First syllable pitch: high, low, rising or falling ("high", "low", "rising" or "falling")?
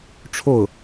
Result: falling